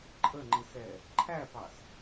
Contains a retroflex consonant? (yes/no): no